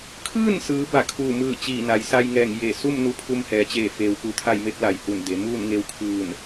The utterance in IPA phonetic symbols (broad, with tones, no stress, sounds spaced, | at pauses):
kʰ ɯː˥˨ n s ɯː˩˧ b a˧˩ kʰ uː˧˩ m ɯː˧˩ t͡ɕ iː˧˩ n a˩˧ j s a˧ j ŋ ɛː˧˩ ŋ j e˧˩ s u˥˨ m n u˧ pʰ u˧ m h ɛː˩˧ t͡ɕ eː˧˩ f eː˩˧ w k u˩˧ t̪ʰ a˥˨ j m e˧˥ p̚ l a˧˩ j h u˧˩ n d e˩˧ m uː˥˨ n ŋ e˧ w kʰ ɯː˧˩ n